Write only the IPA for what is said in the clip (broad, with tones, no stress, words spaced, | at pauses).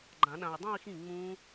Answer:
ɡ͡ǃã˨˩˦ɗã˨y̯dˤũ˥˧i̯xĩ˥˩ ŋ͡mũ˦˥